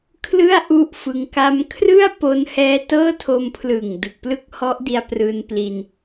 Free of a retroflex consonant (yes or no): yes